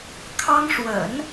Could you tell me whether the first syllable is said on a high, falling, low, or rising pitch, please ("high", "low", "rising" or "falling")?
high